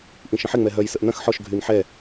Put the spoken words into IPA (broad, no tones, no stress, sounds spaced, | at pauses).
ʔ ĩ ʃ ə̃ ħ ɪ ŋ͡m ɛ ɦ œ j s ə ʔ n ɐ̃ x ħ ɔ ʃ ɡʱ y n ħ ɛ